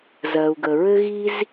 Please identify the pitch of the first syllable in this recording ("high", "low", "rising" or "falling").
low